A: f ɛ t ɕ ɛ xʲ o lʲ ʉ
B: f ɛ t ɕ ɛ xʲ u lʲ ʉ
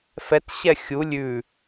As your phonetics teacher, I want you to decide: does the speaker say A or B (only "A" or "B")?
B